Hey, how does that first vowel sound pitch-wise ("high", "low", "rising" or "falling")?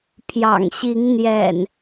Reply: low